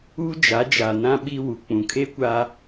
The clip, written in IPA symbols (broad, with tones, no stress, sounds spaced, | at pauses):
u˦ d͡ʒ a˨˦ d͡ʒ a˨ n ã˦ ɓ i˦ w u˨ k͡p ũ˨ kʰ eː˦ kʷ a˦